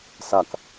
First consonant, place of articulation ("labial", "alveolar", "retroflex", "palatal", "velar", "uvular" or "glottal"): alveolar